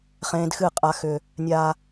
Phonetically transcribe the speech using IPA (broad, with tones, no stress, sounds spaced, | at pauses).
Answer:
χ ẽː˦ d x ɨ˦˨ qʼ a˦ x ʏ˦ | nʲ a˦